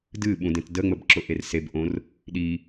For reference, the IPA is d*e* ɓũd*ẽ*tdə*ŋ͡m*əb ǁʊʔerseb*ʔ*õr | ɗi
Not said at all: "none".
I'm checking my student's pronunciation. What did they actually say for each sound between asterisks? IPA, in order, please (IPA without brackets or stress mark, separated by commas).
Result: ɨ, ẽ, ŋ͡m, ʔ